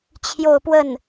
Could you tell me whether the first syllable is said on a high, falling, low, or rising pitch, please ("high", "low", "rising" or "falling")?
falling